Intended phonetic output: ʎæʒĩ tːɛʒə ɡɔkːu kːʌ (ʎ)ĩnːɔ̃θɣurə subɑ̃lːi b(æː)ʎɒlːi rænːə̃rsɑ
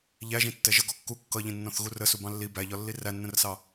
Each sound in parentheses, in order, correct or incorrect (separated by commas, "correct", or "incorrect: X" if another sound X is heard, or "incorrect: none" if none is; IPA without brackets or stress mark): correct, incorrect: æ